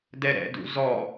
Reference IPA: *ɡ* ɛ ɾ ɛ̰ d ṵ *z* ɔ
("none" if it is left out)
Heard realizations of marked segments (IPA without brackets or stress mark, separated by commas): d, z